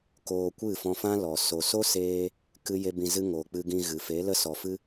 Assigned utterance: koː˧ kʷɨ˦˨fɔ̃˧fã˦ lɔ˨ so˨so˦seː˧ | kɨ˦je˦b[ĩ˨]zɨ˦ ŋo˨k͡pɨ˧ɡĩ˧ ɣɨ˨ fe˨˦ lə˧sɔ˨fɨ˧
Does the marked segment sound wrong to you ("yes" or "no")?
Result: yes